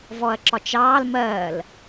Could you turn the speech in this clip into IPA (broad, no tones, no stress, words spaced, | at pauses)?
vɔɐ̯ǁɒt͡ʃɑːl mɜːl